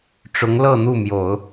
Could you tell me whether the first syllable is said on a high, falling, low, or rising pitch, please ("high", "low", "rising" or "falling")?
rising